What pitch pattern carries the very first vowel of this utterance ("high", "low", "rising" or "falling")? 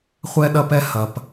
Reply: high